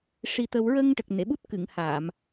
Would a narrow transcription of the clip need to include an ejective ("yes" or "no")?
no